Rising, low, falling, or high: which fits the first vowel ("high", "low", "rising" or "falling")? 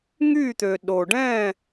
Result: falling